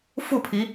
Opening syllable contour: falling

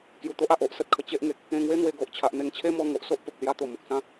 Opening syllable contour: low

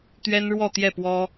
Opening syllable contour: high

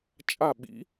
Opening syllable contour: falling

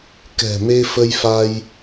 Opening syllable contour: low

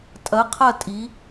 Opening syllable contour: rising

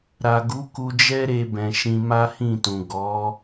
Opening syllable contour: low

